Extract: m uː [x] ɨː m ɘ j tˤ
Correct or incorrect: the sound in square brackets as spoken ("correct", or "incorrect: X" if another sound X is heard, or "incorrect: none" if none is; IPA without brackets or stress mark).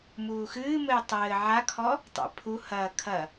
correct